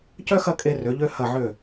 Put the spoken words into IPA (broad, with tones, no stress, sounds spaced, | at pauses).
c œ˥ x ɐ˥˧ kʼ e˧ r ø˩˧ ʎ ø˧ h ɐ˧˩ ʕ ø˧˩